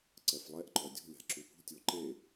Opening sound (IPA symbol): ǀ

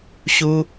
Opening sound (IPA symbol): ɕ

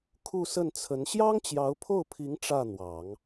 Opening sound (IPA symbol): kʰ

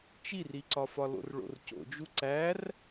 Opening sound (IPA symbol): t͡ʃ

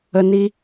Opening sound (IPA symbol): ə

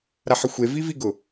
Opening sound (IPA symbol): ɾ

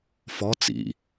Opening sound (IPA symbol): f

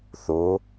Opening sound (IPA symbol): θ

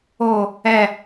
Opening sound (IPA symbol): o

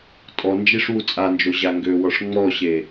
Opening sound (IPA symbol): tʼ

